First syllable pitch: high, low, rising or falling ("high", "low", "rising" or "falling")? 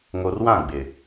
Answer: low